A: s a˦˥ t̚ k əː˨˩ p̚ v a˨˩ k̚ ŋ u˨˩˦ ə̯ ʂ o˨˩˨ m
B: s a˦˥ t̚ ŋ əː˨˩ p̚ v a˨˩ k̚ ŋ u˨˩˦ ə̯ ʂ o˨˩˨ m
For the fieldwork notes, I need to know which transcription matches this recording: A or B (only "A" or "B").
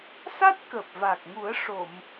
A